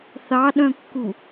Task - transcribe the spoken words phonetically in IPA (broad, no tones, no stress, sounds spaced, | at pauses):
θ ɑ ɗ œ̃ kː u